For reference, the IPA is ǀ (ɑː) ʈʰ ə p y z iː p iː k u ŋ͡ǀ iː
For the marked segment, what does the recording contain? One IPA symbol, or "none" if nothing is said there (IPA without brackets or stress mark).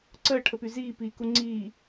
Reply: əː